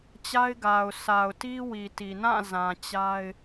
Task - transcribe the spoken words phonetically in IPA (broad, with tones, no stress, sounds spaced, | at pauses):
t͡ɕ a˦ ɪ̯ ɡ a˨ ʊ̯ sʰ a˨ ʊ̯ t i˦ w i˨ t i˨ n ã˦˨ z ã˨ t͡ɕ a˦ ɪ̯